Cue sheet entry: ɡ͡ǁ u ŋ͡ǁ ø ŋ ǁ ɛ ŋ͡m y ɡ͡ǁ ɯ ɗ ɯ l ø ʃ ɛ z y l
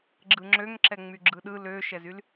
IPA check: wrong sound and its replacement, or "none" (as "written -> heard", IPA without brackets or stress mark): u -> ɯ